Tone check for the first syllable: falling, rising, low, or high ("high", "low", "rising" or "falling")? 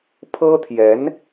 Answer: high